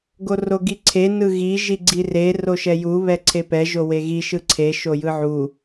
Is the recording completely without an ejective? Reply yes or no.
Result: yes